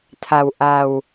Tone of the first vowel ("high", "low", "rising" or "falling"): low